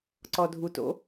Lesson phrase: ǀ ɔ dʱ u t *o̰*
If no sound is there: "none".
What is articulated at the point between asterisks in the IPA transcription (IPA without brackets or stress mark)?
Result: o̰